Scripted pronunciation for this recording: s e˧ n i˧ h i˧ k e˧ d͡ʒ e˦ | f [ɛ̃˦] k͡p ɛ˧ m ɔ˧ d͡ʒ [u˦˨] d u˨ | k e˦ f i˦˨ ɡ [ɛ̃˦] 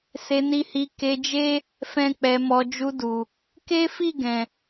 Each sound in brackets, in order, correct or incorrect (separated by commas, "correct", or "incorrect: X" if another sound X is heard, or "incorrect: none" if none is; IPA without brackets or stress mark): correct, incorrect: u˧, incorrect: ɛ̃˨